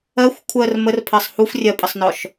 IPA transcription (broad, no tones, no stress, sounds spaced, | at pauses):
ɜ xʷ kʷʰ ɜ r m ə r pʰ ɜ sˤ h u f rʲ ɜ pʼ ə sˤ n ɔ ʃ